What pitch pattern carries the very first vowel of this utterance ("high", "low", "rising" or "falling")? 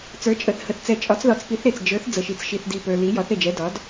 rising